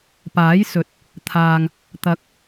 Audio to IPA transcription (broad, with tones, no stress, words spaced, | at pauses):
paː˨˥jsɵ˨˥t̚ | t̪ʰaː˨ŋ | t̪ɐ˨˥k̚